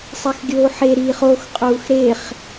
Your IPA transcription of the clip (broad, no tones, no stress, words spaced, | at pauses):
sˤexɡʲoːħe ɾiːχox qʼuːxɾeχ